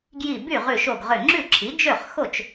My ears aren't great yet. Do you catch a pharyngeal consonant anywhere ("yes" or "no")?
no